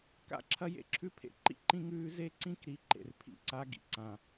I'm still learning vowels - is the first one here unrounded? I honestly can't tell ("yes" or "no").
yes